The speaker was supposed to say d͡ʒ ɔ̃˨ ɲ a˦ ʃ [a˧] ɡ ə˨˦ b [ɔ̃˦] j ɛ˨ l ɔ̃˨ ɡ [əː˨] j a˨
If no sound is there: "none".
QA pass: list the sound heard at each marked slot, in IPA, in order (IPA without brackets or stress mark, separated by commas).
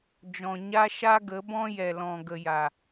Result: a˦, ɔ̃˦, ə˨